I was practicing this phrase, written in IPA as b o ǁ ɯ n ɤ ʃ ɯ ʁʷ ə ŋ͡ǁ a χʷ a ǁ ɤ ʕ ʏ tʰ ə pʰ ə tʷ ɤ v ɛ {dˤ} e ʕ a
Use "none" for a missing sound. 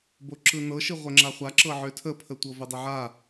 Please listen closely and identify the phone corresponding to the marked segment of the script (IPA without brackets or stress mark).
dˤ